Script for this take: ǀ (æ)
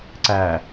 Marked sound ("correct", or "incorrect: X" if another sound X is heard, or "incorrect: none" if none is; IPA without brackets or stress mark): correct